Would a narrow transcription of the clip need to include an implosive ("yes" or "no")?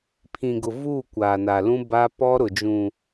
no